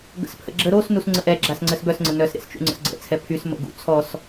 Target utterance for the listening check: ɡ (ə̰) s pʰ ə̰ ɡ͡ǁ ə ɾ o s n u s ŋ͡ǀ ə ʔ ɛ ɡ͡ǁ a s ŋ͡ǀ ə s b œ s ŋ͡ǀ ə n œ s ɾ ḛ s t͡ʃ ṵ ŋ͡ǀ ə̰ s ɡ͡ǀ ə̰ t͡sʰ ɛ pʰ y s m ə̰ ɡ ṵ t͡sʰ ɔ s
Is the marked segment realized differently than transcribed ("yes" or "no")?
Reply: no